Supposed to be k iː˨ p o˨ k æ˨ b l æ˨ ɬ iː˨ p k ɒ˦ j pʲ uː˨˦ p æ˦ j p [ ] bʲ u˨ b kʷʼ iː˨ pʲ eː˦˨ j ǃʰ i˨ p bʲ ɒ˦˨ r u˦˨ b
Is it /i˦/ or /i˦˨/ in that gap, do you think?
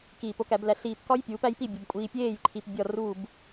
i˦˨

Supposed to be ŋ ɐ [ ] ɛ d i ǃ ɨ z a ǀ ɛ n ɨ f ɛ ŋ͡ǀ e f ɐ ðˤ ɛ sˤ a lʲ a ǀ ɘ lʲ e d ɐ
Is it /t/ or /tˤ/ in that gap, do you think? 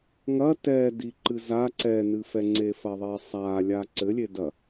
t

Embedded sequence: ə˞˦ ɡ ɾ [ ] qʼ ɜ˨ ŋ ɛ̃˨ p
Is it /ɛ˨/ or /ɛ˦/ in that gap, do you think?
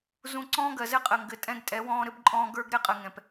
ɛ˦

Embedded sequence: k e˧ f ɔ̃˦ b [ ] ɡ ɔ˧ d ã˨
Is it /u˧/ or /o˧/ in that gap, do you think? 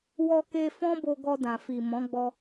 o˧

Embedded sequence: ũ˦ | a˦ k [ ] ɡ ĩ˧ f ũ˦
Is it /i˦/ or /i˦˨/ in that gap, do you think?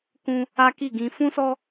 i˦˨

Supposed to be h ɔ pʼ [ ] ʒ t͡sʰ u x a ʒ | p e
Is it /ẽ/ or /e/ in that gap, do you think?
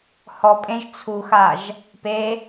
ẽ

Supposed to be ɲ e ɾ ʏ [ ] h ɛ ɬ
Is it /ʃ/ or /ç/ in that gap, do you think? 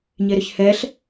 ç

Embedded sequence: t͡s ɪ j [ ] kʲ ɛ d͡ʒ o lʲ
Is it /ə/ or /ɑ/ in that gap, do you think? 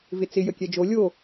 ə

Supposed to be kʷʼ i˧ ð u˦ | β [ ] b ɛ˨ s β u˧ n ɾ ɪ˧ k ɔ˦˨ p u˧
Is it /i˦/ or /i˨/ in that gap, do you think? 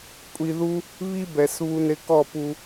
i˦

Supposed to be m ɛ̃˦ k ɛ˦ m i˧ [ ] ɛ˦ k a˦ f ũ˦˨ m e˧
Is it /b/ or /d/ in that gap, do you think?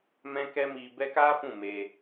b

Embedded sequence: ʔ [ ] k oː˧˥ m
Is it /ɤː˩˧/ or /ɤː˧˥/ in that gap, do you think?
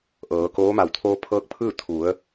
ɤː˩˧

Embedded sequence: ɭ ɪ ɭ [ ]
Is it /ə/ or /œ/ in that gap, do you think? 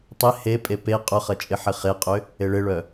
œ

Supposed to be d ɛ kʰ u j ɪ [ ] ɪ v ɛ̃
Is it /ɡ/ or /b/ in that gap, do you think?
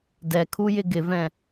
ɡ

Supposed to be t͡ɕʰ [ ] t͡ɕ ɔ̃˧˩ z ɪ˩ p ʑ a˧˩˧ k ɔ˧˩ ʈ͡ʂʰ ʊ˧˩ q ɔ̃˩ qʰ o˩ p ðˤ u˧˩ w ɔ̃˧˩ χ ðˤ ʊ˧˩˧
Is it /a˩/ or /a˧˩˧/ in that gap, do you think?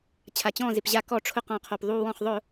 a˩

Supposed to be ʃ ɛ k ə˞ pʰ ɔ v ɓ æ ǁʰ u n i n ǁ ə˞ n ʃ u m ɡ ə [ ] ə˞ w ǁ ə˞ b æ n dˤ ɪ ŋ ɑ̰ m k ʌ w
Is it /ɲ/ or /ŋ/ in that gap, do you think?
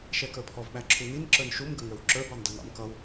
ŋ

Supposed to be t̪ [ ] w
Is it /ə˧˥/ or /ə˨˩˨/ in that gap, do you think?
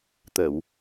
ə˨˩˨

